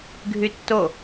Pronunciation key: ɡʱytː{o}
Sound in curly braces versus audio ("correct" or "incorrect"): correct